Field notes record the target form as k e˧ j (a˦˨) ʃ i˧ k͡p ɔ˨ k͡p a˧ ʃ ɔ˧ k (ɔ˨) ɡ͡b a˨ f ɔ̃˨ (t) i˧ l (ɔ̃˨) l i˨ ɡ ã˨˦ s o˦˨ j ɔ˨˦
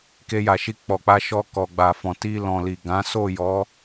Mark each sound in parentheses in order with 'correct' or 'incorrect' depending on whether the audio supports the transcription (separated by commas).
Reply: incorrect, correct, correct, correct